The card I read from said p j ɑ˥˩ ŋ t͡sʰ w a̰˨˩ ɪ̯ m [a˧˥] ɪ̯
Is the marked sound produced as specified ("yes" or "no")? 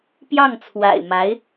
yes